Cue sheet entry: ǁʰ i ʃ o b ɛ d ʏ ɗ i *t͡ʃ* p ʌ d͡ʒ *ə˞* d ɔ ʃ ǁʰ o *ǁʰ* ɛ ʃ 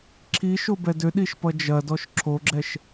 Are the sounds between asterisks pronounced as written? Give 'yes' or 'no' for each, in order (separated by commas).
no, no, no